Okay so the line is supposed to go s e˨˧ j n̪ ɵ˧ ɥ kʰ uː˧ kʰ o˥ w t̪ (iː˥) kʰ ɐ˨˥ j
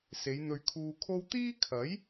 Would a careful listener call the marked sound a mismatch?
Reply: no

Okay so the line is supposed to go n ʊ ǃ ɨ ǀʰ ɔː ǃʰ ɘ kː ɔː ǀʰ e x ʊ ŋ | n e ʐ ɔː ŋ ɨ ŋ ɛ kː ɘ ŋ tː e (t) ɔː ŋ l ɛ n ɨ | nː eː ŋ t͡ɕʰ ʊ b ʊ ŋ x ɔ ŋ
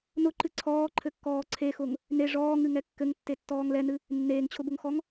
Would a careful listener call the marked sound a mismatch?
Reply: yes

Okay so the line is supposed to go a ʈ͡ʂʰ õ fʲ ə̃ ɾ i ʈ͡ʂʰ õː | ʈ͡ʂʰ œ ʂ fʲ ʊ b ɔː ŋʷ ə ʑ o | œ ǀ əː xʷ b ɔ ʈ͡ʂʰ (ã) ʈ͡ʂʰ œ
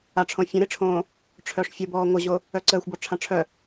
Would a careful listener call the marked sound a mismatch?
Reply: no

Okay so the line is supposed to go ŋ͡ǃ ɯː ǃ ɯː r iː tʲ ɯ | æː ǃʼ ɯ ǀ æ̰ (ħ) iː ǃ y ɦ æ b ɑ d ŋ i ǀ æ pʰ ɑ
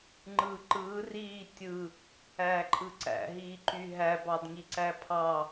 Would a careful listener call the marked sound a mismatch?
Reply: yes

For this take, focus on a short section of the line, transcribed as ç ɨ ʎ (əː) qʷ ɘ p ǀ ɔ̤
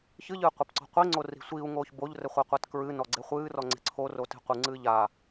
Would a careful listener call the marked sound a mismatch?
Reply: yes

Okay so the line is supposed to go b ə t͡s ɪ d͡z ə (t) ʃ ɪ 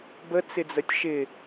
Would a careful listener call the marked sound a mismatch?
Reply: yes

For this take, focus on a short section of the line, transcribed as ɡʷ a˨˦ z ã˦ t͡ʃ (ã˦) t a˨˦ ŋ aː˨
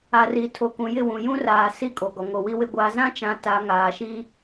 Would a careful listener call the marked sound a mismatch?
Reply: yes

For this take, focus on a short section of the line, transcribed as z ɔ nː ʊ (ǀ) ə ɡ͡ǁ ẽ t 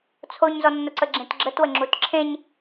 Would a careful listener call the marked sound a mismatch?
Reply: no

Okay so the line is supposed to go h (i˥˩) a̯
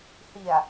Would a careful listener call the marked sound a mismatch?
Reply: yes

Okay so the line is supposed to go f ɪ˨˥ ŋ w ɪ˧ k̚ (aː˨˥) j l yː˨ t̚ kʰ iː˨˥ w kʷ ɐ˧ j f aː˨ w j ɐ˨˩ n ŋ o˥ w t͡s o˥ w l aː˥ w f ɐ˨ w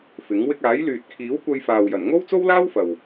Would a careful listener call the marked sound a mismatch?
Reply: no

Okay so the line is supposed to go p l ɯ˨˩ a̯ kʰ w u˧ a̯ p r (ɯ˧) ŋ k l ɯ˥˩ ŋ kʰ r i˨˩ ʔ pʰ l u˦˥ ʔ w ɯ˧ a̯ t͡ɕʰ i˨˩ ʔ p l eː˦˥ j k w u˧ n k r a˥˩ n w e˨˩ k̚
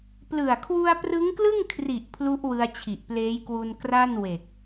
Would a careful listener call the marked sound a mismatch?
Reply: yes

